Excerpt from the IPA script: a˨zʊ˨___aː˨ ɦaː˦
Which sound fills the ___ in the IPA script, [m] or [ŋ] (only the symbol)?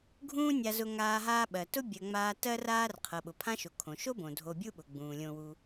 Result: ŋ